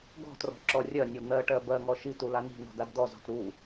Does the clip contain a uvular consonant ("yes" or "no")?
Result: no